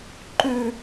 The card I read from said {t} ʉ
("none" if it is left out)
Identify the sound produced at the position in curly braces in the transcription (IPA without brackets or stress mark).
ǃ